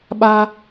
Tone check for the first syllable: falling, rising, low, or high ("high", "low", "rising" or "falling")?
high